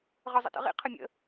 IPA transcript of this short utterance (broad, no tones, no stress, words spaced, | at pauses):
ʁə˞zˤə̰tə̰ʁḭ qʰəmʲə̰